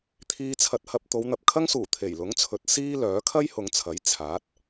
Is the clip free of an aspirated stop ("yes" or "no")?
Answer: no